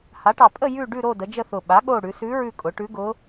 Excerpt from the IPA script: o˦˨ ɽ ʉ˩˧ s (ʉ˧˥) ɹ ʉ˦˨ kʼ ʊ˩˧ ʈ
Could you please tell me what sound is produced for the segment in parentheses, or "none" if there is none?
ʉ˧˥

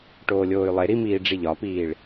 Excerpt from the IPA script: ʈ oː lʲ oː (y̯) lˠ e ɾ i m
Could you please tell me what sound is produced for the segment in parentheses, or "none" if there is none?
y̯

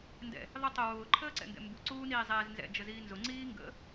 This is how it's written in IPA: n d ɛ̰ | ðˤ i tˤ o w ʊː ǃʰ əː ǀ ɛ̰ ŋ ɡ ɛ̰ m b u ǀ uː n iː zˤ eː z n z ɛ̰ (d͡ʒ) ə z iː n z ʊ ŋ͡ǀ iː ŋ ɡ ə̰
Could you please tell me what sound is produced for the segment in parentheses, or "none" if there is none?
d͡ʒ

